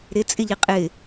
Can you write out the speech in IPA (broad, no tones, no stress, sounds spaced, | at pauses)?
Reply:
ɾ ɪ t͡sʼ ɪ ʎ i qʼ ɪ